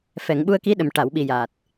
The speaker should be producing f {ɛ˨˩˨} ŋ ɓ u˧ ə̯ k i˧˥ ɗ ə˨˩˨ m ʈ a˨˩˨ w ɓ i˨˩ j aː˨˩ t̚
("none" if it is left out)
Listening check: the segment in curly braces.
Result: ɛ˨˩˨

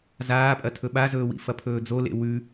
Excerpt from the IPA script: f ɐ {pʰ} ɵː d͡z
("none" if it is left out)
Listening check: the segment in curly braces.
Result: pʰ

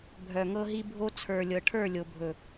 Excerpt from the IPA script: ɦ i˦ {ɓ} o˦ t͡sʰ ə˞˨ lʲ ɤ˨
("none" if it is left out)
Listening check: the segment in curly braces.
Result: bʱ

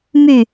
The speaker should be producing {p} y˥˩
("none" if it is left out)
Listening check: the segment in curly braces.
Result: m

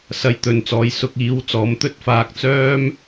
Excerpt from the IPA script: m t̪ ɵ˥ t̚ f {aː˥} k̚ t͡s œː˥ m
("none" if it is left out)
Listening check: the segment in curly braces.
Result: aː˧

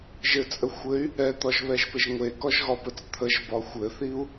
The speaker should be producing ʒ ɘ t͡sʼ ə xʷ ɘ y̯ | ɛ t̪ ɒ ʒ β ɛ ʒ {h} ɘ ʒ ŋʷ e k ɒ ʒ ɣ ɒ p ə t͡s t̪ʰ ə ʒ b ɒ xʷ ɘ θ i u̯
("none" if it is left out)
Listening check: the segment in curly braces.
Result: p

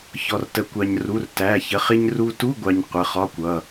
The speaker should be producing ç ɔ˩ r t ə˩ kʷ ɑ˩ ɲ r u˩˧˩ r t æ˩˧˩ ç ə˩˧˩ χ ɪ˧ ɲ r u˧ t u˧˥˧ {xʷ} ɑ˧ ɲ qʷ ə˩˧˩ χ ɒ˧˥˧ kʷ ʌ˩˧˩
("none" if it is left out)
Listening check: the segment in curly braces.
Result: ɡʷ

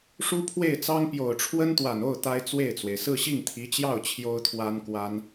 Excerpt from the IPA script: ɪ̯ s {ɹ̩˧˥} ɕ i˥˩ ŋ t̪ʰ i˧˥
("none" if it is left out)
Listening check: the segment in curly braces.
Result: ɹ̩˥˧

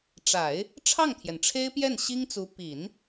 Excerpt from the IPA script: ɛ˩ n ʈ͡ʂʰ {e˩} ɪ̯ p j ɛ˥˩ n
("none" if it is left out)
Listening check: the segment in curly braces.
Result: e˥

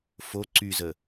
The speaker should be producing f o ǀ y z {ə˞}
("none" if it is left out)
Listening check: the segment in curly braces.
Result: ə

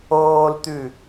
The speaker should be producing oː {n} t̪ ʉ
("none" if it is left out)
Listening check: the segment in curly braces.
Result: l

